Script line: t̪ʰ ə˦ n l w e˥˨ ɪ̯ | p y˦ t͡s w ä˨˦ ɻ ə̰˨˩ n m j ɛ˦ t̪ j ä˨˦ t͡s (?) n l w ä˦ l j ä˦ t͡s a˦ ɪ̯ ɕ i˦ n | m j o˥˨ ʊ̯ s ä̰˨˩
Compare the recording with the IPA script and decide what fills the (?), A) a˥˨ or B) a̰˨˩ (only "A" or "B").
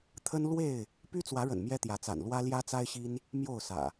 B